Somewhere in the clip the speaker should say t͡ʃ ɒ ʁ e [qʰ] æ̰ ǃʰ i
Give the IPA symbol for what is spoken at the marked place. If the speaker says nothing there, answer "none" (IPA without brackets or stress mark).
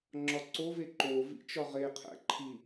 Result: qʰ